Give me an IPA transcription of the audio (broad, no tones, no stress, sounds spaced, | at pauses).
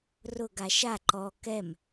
r ʊ ɡ a ʃ a ǃ ɔ k ɛ m